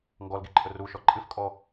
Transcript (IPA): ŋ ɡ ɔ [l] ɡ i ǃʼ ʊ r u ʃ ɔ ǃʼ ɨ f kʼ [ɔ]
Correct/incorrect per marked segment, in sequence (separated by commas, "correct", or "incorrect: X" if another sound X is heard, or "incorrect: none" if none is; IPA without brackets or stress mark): correct, correct